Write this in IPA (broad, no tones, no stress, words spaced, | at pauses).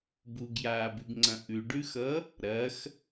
buɡjaːbʉɡŋ͡ǀɐ̃ ʔʉɖʉxʌ | ɾɐx